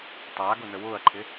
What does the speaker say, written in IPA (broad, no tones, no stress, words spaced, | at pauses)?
tˤaːɡʊ nəwʊːɐ̯ǃʰɪ